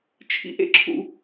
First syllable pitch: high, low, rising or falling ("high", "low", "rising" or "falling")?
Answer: low